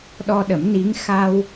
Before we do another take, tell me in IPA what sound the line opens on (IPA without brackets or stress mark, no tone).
ɗ